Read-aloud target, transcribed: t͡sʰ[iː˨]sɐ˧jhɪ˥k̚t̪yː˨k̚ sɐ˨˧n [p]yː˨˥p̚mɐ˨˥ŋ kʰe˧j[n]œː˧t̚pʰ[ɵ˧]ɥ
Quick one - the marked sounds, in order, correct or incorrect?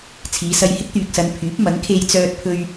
incorrect, incorrect, incorrect, correct

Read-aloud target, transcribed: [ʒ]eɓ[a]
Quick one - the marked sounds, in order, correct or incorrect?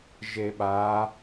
correct, correct

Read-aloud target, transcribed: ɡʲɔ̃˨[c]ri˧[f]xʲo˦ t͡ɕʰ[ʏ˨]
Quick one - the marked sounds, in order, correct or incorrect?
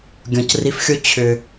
correct, correct, correct

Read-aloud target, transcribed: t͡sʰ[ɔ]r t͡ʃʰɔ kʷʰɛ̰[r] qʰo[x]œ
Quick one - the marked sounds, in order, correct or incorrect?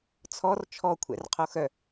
correct, correct, correct

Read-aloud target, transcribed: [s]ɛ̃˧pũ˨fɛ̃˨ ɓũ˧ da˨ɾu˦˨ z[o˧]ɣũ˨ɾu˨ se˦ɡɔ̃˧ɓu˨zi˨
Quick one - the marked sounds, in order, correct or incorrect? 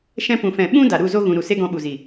incorrect, correct

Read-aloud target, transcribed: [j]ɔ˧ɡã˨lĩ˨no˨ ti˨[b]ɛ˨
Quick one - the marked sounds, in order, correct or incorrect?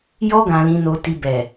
correct, correct

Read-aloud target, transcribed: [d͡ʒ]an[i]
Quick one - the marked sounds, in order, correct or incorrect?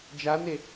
correct, incorrect

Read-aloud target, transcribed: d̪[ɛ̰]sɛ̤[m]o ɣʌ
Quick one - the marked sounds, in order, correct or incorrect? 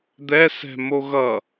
incorrect, correct

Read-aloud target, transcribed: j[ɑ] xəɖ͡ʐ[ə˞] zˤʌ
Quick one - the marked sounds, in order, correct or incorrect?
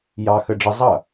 correct, incorrect

